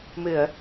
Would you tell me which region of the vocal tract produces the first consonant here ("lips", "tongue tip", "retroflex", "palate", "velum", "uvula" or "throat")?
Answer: lips